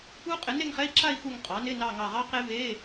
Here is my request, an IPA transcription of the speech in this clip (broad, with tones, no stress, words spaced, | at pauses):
u˦˥qʼɪ˩˥ ne˥˧ŋχɛ˧˥˧i̯ǁa˥˧i̯ xu˧˩ŋ qʼɑ˩˥nɪ˧˥˧ nɑ˧˩ ŋɑ˧˩ʁɑ˦˥qe˦˥ve˧˥˧